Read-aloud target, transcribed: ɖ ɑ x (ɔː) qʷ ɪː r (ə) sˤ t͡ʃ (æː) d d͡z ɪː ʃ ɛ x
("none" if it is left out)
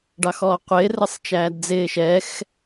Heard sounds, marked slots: ɔː, ə, æː

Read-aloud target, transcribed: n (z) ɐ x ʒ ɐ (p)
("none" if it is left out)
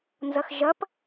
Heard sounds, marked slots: z, p

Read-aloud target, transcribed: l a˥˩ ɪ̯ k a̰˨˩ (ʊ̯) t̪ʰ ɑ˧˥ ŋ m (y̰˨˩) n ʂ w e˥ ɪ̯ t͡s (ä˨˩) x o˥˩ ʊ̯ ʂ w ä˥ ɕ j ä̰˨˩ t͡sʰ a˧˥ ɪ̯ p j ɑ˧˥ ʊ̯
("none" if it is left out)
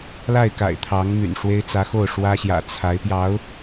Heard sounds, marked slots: ɪ̯, y̰˨˩, ä˧˥

